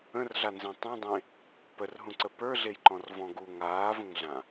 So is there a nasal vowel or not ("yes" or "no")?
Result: yes